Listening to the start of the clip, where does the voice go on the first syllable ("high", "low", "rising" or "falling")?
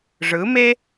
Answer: rising